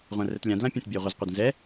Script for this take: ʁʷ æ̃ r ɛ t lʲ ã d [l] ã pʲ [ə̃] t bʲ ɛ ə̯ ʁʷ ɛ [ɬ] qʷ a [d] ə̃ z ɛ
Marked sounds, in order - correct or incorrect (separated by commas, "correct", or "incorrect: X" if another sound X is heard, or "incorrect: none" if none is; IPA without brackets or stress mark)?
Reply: correct, correct, incorrect: z, correct